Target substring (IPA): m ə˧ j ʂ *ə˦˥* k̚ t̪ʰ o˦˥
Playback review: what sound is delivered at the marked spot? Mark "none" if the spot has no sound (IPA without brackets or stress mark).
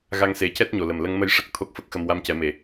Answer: ə˦˥